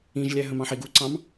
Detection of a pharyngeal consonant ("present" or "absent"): present